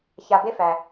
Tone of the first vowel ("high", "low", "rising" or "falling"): low